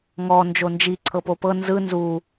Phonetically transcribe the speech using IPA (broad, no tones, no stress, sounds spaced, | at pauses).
ŋ ɔ n d͡ʒ o n d͡ʒ i ǀʰ ɤ p o p ɤ n z ɯ n z u